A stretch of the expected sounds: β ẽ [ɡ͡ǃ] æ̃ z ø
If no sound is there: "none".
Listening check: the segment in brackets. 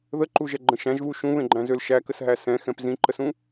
ɡ͡ǃ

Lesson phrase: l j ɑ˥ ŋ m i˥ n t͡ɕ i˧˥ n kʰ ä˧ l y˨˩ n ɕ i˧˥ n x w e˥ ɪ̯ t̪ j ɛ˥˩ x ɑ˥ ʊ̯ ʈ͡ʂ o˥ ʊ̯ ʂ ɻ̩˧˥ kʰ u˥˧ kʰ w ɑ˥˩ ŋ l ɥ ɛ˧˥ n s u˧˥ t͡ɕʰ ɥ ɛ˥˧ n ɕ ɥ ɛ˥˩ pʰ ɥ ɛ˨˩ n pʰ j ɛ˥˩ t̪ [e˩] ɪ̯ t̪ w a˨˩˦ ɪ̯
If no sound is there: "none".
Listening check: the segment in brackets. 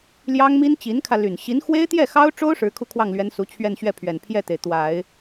e˩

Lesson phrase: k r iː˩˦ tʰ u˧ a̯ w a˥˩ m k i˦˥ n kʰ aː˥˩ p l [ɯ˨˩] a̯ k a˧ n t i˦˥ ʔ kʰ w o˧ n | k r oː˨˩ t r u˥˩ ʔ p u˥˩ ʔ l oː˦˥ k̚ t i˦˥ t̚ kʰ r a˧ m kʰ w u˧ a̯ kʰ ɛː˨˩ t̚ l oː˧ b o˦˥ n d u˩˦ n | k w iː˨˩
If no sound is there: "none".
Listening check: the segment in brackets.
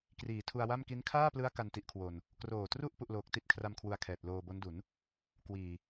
ɯ˦˥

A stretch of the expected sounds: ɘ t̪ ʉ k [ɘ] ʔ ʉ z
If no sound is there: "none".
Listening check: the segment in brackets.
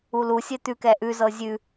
ɛ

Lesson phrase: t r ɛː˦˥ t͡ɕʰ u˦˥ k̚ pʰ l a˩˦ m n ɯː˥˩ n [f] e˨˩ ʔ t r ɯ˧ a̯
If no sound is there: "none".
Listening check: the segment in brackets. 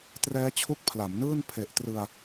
pʰ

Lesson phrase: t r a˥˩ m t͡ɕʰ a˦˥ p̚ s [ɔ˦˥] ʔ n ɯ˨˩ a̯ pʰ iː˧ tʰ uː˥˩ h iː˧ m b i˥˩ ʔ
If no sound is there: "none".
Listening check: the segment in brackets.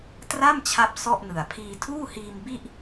ɔ˥˩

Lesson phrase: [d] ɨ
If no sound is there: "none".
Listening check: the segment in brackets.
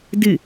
d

